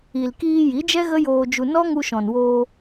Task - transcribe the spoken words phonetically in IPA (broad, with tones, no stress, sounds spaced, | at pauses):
i˨ l k iː˧ j i˨˦ d͡ʒ ɛ˦ ɣ ə˦ j oː˧ d͡ʒ u˧ n ɔ˦ ŋ u˧ ʃ ɔ̃˨ n w oː˧